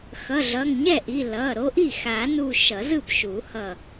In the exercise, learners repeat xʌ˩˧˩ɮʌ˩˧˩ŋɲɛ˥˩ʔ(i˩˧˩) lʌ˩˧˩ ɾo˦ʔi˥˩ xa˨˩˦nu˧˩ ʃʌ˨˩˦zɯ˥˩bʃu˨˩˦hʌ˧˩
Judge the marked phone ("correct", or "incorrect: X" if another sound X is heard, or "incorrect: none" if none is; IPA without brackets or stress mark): correct